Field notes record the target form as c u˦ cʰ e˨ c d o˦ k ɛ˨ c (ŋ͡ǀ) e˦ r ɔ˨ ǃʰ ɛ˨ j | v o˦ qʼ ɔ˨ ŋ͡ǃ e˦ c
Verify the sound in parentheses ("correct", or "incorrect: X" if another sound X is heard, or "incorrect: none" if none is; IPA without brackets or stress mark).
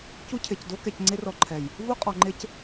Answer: correct